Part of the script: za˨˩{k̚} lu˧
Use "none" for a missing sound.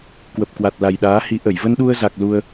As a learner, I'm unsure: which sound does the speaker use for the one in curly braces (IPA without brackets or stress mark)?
k̚